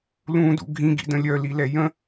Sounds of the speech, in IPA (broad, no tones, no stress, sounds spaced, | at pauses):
l ũ d ṵ ɡʱ ĩ ɡ ḭ d ə̃ lʲ œ l i l ɛ j ə̃